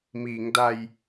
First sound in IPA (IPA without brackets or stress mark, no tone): m